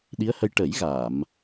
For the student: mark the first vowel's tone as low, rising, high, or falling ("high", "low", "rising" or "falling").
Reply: rising